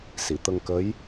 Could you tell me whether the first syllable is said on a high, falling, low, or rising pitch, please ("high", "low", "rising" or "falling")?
low